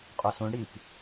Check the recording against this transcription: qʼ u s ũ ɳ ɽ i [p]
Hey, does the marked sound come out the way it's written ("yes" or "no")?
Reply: yes